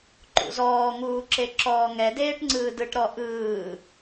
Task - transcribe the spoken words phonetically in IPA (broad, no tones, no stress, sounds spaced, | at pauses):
ǃ ṵ z ɔː ŋ uː ǁ e ǁ ɔː ŋ ɛ d eː ʈ ŋ͡ǀ ɯː d ɯ ʈ ɾ ɔ ʔ ɯː